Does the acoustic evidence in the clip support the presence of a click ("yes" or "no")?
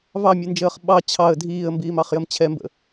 no